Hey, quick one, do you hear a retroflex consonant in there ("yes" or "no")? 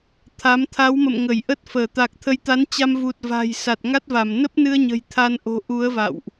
no